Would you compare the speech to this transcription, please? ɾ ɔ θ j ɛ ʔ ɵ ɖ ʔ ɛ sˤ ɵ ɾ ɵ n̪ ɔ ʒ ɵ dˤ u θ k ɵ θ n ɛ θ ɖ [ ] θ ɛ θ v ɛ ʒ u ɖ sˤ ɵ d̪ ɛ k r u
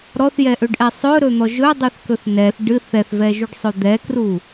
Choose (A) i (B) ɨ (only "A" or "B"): B